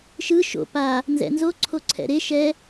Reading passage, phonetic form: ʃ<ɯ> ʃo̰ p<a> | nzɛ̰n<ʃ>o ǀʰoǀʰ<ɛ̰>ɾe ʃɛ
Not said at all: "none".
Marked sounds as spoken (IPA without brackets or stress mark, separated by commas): ɯ, a, z, ɛ̰